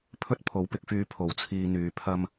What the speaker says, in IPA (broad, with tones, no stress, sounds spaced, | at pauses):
pʰ ɵ˧ t̚ pʰ o˨˥ w p ɪ˨˥ k̚ f yː˧ pʰ o˨˩ w t͡sʰ iː˨ n̪ yː˨ pʰ ɐ˧ m